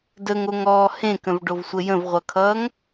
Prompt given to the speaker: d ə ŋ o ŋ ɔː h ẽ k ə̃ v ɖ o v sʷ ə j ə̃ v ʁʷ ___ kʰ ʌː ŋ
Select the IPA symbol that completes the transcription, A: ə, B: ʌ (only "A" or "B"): B